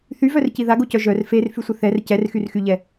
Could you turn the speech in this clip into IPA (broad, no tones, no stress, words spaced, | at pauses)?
θyvœrci ðaɡocœ ʒœr fer fysʷəθɛr cɛrxyrxyʎɛ